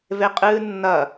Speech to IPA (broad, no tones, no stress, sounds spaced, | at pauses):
v e qʼ ɨː nː ɐ